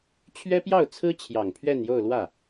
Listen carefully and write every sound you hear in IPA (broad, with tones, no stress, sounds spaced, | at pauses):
t͡ɕʰ ɥ ɛ˥ p j ɑ˥˩ ʊ̯ t͡sʰ ɹ̩˥ t͡ɕʰ j ɑ˨˩ ŋ pʰ ɥ ɛ˥˧ n j o˥˧ ʊ̯ l w ä˥˩